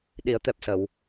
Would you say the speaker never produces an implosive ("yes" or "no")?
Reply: no